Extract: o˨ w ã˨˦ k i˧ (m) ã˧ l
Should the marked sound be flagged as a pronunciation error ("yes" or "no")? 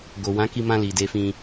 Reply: no